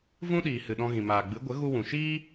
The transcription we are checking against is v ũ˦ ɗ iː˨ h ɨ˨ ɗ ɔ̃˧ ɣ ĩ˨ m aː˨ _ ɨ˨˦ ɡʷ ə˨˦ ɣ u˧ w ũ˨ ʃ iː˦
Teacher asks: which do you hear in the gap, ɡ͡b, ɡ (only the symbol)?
ɡ͡b